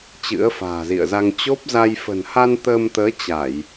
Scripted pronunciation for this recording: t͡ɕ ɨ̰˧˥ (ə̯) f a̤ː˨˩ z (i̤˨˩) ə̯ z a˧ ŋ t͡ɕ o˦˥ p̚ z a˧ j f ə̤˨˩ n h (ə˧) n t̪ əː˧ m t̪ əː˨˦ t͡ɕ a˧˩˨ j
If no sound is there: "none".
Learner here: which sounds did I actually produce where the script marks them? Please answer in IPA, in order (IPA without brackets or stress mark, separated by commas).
ə̯, ḭ˧˨, a˧